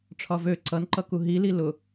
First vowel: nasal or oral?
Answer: oral